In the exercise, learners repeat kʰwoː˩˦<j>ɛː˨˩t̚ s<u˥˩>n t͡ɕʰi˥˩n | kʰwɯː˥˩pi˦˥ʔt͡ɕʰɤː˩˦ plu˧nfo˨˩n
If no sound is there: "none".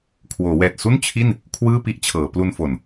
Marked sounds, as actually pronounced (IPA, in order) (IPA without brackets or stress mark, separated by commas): w, u˥˩